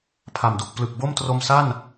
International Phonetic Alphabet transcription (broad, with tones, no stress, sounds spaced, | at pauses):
pʰ a˨˩ m d u˨˩ k̚ p l ɯ˨˩ k̚ b o˥˩ m t r o˧ m s a˥˩ n